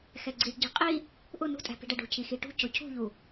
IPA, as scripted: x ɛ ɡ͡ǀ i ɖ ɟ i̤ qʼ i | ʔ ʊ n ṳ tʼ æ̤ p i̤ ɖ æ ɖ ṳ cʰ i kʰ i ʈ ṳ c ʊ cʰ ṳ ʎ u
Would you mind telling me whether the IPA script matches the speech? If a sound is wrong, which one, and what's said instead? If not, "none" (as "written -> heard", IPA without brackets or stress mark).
kʰ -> x